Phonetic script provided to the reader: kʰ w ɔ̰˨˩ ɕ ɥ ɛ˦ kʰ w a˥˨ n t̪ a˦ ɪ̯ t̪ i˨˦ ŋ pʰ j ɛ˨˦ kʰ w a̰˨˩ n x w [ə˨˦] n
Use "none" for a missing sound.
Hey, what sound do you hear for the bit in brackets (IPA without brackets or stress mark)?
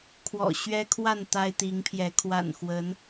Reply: ə˨˦